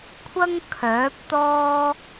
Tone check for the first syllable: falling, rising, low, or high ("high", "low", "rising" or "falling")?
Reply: high